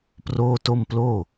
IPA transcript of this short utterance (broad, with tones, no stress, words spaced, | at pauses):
proː˥˩to˥˩m ploː˥˩